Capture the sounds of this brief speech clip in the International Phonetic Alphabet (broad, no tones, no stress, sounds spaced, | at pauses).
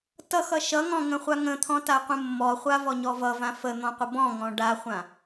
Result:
t ʌ x ʌ ʃ ʌ ŋ ɔ̃ ŋ ə̃ χʷ a ŋ ə̃ t̪ʰ ɔ̃ t a qʷ ə̃ mː ɔ χʷ a v ɔ ɲ ɔ v ʌ v ã f ə n̪ ɔ̃ qʷ ə b ɔ̃ ŋ ɔ̃ ɖ a χʷ ã